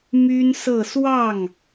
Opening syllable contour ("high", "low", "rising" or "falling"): high